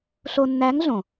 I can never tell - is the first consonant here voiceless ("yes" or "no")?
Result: yes